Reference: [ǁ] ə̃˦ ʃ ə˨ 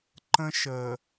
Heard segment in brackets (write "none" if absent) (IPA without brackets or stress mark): ǃ